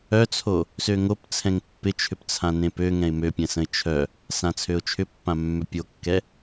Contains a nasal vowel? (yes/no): yes